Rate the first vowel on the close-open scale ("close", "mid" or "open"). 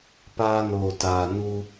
open